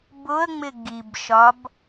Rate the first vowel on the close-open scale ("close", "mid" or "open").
close